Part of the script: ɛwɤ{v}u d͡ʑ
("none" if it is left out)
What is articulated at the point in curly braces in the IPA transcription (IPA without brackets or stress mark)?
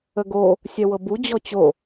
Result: b